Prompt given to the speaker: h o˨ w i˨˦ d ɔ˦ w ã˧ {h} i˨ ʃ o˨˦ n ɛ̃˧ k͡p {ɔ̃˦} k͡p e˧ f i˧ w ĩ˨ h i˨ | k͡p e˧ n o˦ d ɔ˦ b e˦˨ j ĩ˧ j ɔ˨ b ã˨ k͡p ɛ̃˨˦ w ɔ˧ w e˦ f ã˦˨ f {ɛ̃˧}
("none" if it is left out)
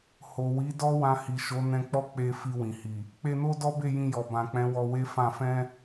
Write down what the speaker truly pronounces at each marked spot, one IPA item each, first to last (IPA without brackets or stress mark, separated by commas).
h, ɔ˦, ɛ̃˧